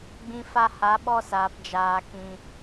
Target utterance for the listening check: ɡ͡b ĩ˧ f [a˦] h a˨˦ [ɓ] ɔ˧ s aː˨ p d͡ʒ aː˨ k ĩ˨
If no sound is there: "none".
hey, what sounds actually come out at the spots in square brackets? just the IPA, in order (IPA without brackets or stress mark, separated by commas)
a˧, ɓ